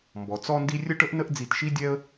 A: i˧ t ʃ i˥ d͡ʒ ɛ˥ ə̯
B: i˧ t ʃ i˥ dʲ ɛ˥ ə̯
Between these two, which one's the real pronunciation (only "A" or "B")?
B